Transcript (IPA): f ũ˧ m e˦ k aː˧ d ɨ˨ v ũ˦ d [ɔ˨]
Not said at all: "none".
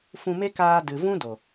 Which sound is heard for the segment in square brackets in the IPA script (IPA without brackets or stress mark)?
o˨